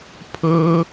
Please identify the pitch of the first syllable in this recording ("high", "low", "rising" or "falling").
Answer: high